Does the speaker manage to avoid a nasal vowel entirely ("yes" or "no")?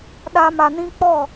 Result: no